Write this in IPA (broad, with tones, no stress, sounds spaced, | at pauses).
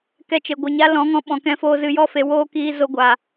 k ɛ˧ t͡ʃ e˨ ɡʷ ɨ˨ ɲ a˦ l ɔ̃˨˦ ŋ ɔ̃˧ ɓ ɔ̃˨ k ɛ̃˧ f oː˧ z ɨ˧ j ɔ˦ f e˧ w oː˦ k iː˧ z o˧ ɡʷ a˨